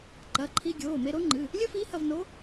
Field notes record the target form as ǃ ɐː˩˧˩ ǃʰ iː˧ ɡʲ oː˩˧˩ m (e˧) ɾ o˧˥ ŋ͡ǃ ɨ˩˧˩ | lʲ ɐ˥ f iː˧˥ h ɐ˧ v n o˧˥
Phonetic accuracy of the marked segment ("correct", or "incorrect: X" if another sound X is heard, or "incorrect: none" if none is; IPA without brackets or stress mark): correct